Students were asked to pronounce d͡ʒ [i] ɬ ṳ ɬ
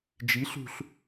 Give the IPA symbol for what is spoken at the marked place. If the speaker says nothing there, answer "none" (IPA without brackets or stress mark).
i